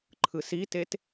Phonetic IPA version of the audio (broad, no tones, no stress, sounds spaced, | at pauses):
ǃʰ ɯ s i t e t